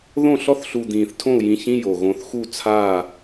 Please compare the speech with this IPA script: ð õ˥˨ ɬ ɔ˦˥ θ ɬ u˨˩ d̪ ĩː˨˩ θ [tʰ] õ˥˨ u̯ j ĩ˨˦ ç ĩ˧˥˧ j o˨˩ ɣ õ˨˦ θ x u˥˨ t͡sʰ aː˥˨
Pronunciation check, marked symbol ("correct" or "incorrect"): correct